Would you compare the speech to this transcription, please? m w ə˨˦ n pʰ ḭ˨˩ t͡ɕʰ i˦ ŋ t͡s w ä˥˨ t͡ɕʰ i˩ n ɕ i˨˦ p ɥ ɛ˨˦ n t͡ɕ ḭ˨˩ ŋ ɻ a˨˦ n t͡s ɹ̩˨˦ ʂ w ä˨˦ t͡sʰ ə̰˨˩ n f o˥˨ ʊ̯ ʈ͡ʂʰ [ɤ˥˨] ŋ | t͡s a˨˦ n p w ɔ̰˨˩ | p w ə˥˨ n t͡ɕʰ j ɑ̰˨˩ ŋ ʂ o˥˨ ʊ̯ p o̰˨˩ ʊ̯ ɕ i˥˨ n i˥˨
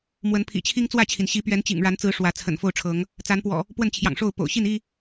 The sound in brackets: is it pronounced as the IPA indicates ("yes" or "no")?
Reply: no